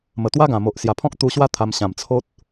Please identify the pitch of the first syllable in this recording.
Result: low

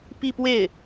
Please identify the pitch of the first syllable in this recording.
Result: falling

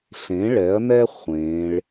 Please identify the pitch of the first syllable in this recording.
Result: rising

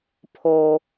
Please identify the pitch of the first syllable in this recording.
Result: low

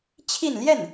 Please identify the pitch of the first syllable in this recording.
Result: falling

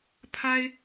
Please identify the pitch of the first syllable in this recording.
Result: high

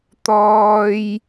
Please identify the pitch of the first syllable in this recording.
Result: high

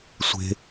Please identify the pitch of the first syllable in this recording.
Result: high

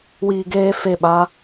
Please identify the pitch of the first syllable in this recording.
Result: low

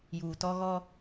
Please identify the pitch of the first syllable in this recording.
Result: low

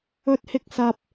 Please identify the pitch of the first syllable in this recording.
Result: high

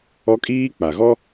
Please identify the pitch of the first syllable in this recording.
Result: high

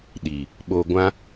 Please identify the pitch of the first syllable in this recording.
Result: low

